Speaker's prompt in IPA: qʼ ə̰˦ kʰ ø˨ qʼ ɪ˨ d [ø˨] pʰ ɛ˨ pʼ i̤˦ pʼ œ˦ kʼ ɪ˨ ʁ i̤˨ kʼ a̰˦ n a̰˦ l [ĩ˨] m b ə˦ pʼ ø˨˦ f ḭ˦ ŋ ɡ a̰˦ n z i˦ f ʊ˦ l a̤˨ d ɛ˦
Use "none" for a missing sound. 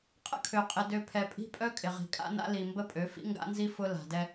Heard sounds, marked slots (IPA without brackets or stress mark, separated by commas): ø˨, i˨